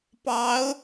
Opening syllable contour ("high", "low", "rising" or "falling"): rising